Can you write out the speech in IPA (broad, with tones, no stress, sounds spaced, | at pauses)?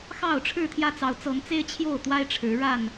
x ɑ˥˨ ʊ̯ ʈ͡ʂʰ ɻ̩˥˨ t̪ʰ j ä˦ t͡s ɑ˨˦ ʊ̯ t͡s ɤ˨˦ ŋ t͡s e˦ ɪ̯ t͡ɕʰ j o˥˨ ʊ̯ t̪ w a˦ ɪ̯ ʈ͡ʂʰ ɻ̩˨˦ ɻ a˥˨ n